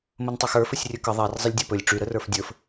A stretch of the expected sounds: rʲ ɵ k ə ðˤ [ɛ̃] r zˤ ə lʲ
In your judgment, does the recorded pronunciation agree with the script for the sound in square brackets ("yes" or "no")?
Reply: no